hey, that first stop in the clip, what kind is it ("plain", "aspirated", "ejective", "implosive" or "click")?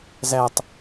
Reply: plain